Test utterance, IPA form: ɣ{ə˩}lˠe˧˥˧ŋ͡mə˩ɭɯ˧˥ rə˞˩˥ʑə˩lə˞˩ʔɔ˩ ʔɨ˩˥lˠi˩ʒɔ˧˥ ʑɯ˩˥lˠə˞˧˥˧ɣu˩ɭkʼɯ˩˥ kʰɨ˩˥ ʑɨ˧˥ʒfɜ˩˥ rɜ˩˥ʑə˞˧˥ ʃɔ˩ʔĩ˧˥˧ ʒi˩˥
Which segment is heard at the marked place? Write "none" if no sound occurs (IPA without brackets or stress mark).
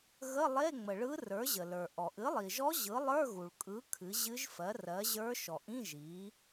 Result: ə˧˥˧